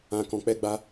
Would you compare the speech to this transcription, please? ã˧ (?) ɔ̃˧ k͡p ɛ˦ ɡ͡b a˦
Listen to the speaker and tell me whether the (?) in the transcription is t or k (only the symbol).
k